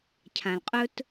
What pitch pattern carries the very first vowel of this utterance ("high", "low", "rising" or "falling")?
low